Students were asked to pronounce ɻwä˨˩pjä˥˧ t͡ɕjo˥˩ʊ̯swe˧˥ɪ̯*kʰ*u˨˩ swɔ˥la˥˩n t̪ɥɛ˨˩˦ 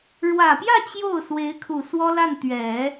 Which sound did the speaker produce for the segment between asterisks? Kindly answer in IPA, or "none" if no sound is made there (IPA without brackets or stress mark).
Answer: kʰ